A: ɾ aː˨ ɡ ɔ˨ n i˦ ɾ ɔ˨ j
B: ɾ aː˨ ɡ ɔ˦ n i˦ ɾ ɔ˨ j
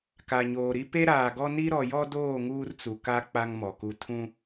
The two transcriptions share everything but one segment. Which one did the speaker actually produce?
B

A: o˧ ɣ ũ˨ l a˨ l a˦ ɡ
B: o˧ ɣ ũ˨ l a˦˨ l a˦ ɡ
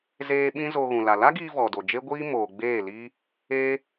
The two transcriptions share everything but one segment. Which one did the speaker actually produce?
A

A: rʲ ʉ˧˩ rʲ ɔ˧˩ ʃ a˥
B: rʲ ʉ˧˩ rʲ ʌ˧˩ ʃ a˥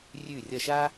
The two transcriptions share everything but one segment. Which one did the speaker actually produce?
B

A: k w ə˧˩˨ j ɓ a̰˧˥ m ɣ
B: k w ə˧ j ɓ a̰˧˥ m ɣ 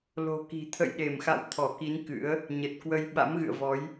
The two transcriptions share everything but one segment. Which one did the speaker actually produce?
B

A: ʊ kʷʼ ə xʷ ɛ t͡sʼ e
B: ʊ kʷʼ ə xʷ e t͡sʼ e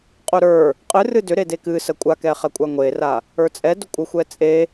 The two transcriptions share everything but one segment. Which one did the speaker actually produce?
A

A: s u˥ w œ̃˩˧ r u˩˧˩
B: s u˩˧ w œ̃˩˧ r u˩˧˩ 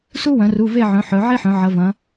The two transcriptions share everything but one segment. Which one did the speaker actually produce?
A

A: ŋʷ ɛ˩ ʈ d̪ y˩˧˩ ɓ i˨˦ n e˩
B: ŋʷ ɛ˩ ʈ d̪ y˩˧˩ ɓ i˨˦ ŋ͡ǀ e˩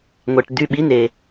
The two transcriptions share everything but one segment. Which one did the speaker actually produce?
A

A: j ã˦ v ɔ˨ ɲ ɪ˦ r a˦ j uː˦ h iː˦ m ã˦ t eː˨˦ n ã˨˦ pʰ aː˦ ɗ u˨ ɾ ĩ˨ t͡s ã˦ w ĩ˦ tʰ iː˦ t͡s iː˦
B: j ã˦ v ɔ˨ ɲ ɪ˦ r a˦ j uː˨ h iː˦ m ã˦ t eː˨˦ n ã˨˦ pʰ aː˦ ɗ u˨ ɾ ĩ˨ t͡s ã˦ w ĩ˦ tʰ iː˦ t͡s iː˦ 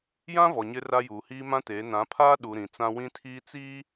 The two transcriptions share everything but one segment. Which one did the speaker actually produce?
B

